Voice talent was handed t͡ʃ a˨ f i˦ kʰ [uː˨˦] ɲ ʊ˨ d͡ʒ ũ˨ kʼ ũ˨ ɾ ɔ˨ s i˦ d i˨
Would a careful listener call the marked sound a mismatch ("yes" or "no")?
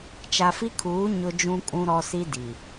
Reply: no